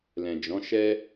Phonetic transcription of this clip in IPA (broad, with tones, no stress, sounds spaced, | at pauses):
l ɛ̃˨ d͡ʒ ɔ̃˨˦ ʃ ɛ˦